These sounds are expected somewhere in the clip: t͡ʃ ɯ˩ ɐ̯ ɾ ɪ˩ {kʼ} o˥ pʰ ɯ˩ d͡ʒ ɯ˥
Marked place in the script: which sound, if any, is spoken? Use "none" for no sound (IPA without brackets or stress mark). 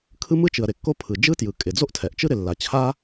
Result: kː